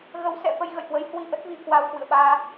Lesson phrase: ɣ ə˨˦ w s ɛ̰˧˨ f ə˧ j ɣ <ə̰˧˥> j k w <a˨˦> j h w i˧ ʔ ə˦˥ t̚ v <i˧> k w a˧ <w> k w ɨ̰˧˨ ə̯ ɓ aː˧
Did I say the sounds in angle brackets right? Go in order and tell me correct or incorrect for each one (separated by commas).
incorrect, incorrect, correct, correct